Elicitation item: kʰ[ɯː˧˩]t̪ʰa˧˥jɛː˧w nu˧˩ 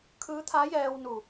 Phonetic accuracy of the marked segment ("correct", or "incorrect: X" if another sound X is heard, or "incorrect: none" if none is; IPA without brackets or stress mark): incorrect: ɯː˧˥